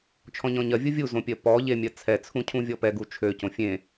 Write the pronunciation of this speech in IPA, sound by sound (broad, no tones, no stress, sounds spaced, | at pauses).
t͡ʃʰ ɔ̃ ɲ ɔ̃ ɲ ɜ vʲ u vʲ u z õ pʲ ɜ p ɔ ʎ e mʲ ɜ t͡sʰ ɛ t͡sʰ ũ cʰ ũ vʲ ɔ p ɛ ɡ u t͡ʃʰ ø c õ fʲ ẽ